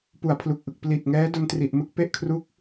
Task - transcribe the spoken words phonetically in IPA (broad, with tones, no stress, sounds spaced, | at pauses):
p u˨˩ a̯ pʰ l u˨˩ k̚ ʔ ɯ˨˩ k̚ p l i˨˩ t̚ ŋ ɛː˦˥ d o˧ n t r i˨˩ ʔ m ɯ˦˥ k̚ p e˦˥ ʔ kʰ r u˦˥ k̚